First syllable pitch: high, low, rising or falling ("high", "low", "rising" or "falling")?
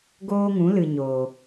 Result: high